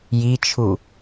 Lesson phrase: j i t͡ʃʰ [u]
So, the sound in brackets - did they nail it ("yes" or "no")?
yes